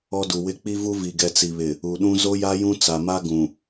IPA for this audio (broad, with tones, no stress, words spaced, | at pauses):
ɔ˦du˨wɪ˦ k͡pi˦vu˦ vi˨ɡɛ˨t͡si˨βɪ˨ | u˨ɗũ˦ zo˦ja˦jũ˦ t͡sa˨ma˦ ɡũ˨